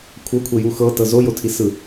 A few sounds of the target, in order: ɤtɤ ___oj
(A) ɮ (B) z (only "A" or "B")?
B